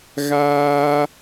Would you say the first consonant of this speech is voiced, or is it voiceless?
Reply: voiced